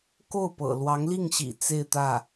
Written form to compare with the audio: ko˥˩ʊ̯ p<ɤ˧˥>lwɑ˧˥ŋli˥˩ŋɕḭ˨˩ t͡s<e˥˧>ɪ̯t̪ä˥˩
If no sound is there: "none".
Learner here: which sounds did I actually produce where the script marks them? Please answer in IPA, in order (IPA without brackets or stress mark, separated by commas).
ɤ̰˨˩, e˥˧